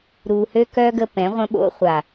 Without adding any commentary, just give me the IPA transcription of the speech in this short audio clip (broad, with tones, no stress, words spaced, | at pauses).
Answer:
ɾu˨hø˦kœ˦ ɡə˦pɛ̃˨˦ʁʷə̃˦ ɓo̰˦χʷa˨